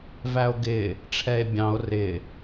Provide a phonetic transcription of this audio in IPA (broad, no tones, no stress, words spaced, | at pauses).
væo̯ɡɪː | ʈ͡ʂʰɛe̯bʲɑ̃o̯ rɪː